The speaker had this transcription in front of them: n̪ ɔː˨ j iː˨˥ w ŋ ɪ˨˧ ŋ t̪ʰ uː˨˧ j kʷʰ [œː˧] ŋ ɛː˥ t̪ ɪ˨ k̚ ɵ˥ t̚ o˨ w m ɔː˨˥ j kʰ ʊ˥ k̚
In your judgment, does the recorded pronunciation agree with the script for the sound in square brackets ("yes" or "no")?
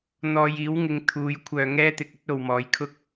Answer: yes